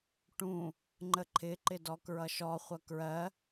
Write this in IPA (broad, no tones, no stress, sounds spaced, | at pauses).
ʈ ũ | ŋ͡ǃ ə ǃʰ ɪ ǃ ɪ d ɔ k ɹ ʌ ʃ ɔ χʷ ʌ k ɹ ɜ